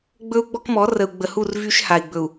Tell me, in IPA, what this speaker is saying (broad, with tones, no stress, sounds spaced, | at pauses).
ɡ͡b ɵ˦ u̯ ɡ͡b ɔ˦ k m ɔ˨˦ r ə˨ u̯ ɡ͡b ə˨ h u˦˨ r v y˦ ʃ h a˨ i̯ ɡ͡b ɵ˨ u̯